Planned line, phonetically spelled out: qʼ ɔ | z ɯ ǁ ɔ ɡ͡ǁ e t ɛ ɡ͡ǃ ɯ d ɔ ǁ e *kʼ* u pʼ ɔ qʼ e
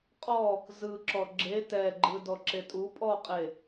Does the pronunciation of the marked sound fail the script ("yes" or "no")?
yes